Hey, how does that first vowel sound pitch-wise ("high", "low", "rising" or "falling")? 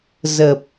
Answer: low